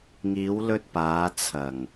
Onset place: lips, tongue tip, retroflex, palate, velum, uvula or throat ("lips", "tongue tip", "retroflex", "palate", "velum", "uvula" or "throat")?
velum